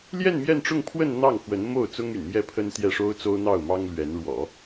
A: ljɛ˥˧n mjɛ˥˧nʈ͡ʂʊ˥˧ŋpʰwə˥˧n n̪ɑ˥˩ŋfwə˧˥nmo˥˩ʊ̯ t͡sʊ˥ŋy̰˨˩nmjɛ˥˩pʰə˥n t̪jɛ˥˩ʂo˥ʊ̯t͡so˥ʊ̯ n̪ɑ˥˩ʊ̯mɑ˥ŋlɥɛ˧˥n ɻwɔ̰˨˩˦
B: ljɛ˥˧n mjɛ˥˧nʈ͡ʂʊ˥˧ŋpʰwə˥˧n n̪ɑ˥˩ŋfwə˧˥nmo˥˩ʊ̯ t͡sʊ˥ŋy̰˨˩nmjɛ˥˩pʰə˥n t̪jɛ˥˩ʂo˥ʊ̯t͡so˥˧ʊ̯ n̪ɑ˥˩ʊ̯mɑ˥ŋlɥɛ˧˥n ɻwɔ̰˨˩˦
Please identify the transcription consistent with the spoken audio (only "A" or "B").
A